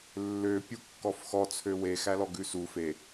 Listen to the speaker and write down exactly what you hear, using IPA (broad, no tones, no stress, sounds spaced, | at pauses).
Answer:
lː ø pʲ u kː ɔ f x ɔ t͡sʰ ø w e x æ l ɔ ɡ ʉ s u f e